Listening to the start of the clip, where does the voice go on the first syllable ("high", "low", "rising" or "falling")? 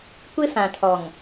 high